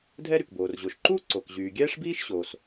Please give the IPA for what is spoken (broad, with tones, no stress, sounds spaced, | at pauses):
dʱ ɛ˥ ɾ y˩ k b oː˩ r ʑ o˩ ʃ ǃ uː˥ ǀ o˩ k ʑ yː˩ ɡʲ ɛː˥ ʂ b iː˥ ʃ ɕ oː˩ s